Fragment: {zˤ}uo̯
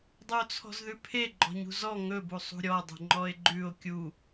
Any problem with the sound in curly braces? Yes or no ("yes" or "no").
yes